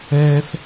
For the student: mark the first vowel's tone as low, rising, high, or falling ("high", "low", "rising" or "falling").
high